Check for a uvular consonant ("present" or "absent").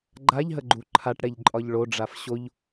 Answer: absent